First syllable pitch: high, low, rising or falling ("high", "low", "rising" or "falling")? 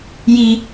high